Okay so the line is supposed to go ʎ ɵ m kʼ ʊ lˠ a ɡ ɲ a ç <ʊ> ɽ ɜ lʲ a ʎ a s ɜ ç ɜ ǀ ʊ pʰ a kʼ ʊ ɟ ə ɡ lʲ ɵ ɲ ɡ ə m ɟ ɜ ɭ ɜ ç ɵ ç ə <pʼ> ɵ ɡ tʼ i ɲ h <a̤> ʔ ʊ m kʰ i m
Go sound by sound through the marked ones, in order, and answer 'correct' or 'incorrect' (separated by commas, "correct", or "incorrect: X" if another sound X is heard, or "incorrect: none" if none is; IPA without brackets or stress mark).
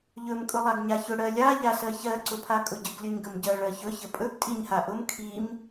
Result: correct, correct, incorrect: a